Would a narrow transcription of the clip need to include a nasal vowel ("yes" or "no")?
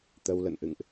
no